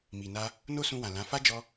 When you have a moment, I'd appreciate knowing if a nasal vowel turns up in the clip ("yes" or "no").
yes